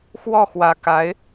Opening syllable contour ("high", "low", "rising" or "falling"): falling